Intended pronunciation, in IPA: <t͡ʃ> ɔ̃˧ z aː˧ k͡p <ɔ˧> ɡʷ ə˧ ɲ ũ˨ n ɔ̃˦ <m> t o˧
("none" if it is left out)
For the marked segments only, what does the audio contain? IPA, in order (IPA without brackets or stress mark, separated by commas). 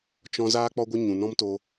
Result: t͡ʃ, ɔ˧, m